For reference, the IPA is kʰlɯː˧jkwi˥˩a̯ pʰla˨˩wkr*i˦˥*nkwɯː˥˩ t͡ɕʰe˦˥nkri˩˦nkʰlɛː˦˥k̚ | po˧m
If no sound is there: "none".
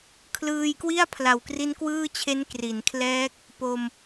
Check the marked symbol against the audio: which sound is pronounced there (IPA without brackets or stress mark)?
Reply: i˦˥